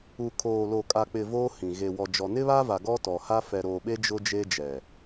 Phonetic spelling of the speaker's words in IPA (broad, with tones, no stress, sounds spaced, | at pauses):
u˨ kʰ oː˨ l o˨ kʼ a˨ k͡p ɪ˨ v oː˦ h ĩ˨ ɣ e˨ w ɔ˨ d͡ʒ ɔ˨ n ɪ˦ β a˦ v a˨ ɡ ɔ˦ t ɔ˨ h a˦ f ɛ˨ ɾ o˨ ɓ e˦ d͡ʒ ʊ˦ d͡ʒ e˦ d͡ʒ ɛ˨